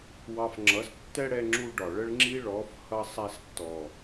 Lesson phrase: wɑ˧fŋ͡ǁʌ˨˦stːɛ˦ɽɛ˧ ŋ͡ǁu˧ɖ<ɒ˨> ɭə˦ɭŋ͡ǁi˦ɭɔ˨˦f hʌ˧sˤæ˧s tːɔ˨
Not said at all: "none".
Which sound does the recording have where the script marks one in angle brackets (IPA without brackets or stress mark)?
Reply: ɒ˨